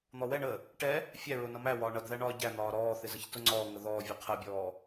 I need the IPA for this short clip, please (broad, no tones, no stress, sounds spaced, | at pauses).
n̪ ɔ w ɛ ɳ ə | ʈ ɛ | fʲ æ ɹ ʊ n ʌ m æ w ɒː ɳ ʌ d ð æ ɳ ɒː ɟ æ n̪ ɒː ɾ ɔː θ ɪ z ə ç t ʊ ŋ͡ǀ ɔː ŋ ə ð ɔː vʲ ɛ qʰ ə bʲ ɔː